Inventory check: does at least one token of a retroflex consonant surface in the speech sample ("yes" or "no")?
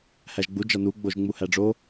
yes